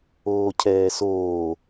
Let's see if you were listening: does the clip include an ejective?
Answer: no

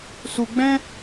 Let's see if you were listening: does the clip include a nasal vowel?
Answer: yes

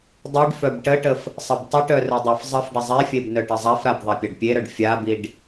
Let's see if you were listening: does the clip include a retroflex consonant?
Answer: yes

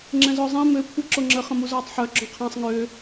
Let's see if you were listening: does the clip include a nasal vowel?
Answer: yes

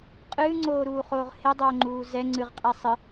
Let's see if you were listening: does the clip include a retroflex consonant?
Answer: no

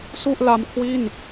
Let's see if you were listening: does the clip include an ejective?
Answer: no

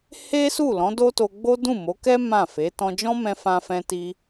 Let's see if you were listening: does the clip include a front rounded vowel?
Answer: no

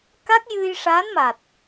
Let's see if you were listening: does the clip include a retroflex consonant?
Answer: yes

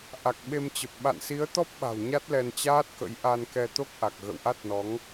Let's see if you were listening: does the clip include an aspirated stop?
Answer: no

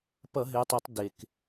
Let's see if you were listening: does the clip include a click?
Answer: no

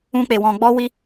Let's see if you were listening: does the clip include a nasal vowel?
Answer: yes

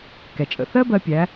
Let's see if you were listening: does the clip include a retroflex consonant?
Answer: no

